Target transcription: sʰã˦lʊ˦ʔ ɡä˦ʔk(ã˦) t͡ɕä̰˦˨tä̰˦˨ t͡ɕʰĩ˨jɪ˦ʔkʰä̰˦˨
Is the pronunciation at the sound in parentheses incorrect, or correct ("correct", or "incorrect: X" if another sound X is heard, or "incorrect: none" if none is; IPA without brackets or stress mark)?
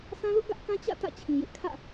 correct